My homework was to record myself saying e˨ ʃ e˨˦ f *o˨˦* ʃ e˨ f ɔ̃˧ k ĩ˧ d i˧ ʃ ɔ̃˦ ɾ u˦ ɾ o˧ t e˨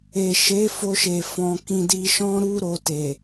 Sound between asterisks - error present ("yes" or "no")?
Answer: yes